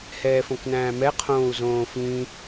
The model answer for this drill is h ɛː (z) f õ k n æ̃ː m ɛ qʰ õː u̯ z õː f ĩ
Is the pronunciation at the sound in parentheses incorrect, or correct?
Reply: incorrect: none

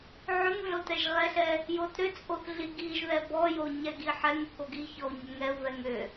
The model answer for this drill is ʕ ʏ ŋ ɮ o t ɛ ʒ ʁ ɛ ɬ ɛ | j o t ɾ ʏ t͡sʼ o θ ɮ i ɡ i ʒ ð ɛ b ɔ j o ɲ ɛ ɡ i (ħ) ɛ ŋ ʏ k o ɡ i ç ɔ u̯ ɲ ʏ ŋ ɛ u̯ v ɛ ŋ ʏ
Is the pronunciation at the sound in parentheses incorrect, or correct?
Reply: correct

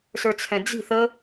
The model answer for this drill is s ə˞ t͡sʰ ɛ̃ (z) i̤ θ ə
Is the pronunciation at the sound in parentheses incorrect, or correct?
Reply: incorrect: d͡z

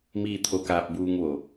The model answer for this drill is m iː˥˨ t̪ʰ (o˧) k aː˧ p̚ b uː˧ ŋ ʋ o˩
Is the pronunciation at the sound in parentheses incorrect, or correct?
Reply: correct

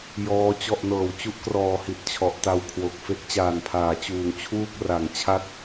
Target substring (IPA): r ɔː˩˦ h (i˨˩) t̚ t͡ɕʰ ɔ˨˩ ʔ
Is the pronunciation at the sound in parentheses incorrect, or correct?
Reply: correct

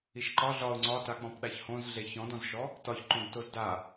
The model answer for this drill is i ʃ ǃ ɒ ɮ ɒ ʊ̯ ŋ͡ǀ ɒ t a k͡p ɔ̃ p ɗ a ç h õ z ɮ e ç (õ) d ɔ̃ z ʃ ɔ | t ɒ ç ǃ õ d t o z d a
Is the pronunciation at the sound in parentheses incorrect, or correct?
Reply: incorrect: ɔ̃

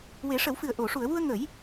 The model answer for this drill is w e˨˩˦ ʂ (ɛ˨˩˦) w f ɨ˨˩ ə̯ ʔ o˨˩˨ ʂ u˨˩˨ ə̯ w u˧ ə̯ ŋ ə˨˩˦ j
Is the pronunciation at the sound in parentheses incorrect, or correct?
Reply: incorrect: ə˨˩˦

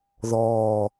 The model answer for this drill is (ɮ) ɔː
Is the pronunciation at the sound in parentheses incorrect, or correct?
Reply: incorrect: ð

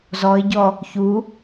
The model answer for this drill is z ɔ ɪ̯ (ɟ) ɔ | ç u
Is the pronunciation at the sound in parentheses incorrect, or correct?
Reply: correct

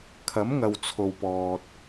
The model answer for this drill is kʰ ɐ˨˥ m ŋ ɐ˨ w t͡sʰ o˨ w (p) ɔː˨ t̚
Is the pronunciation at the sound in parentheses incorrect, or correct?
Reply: correct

